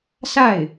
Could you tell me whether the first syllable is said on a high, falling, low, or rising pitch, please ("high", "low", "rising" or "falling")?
falling